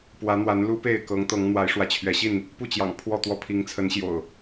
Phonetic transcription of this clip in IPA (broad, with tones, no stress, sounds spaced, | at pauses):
p w ä˨˦ n̪ w a˨˦ n l u˦ p e˥˨ ɪ̯ k ɤ˨˦ ŋ t̪ ɤ˨˦ ŋ n̪ w a˨˦ ɪ̯ ʂ w ä˨˦ t͡ɕʰ ɥ ɛ˨˦ ɕ i˥˨ n | p u˥˨ t͡ɕ j ɑ̰˨˩ ŋ pʰ w ɔ˥˨ t̪ w ɔ˥˨ pʰ i˨˦ ŋ t͡sʰ ə˨˦ n ɕ j o̰˨˩ ʊ̯